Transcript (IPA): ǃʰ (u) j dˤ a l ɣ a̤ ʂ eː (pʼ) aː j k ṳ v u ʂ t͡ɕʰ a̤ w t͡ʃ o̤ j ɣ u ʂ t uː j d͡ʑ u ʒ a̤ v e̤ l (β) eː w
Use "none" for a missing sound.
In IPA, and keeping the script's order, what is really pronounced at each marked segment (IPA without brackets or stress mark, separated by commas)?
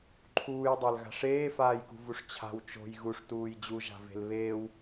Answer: uː, f, β